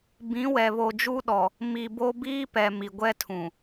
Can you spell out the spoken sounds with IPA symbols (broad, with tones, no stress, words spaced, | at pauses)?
bĩ˨˦wɛ˨ βo˨d͡ʒu˦ɗɔ˨ | mi˨bo˦ biː˦pɛ˨ mi˨ɡʷɛ˦tʰũ˨